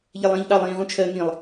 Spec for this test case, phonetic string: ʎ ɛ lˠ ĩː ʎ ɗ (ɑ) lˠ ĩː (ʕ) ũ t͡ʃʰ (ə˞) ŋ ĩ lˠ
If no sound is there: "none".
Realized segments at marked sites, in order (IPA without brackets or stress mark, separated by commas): ɑ, ʁ, ɜ